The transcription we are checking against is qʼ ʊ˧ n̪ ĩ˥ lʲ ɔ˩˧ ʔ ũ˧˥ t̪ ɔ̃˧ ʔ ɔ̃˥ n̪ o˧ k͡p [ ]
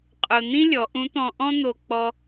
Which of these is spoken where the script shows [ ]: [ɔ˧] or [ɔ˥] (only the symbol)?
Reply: ɔ˧